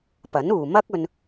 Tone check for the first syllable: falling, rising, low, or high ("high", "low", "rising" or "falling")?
rising